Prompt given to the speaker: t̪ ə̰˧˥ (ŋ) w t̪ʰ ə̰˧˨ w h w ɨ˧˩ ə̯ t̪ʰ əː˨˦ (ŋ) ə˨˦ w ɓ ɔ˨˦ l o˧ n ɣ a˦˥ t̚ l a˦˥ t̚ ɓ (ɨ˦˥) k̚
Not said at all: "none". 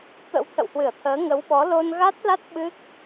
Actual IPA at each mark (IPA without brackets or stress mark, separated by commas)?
none, ŋ, ɨ˦˥